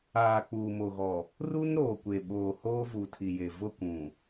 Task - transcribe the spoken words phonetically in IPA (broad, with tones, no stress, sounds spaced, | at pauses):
aː˨ k͡p uː˨ m o˨ ɣ ɔ˨ | r u˦ n ɾ oː˨ kʷ e˨ ɓ oː˨ h oː˦ v u˨ tʰ i˨ j e˨ v ʊ˦˨ kʷ ũ˨